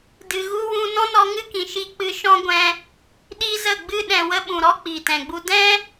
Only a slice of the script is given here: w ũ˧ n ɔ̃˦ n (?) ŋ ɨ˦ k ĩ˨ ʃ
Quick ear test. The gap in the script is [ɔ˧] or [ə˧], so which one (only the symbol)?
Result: ɔ˧